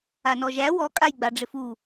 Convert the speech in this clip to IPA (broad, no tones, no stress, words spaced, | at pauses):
anɔʒæ wɔ kʼajɡ͡baɖ͡ʐɪfu